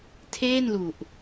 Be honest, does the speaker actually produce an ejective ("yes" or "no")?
no